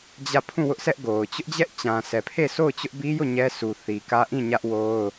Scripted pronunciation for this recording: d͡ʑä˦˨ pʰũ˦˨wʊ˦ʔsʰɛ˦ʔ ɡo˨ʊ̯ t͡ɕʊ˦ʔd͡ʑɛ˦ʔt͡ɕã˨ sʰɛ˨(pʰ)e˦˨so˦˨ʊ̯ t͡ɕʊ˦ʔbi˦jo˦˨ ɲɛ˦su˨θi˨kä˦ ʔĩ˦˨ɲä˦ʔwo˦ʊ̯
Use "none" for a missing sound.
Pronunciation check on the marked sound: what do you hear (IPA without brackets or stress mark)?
pʰ